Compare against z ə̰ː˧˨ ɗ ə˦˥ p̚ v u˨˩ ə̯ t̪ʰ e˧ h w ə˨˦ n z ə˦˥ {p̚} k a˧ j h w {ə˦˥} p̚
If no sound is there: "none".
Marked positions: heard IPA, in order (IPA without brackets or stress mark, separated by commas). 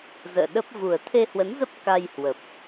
p̚, ə˨˩